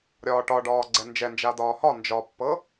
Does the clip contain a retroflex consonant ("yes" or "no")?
yes